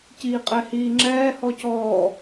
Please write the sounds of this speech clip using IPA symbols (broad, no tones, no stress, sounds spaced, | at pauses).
c iː qʼ ɛ h iː ŋ͡ǁ ɛː h ɔ c ɔː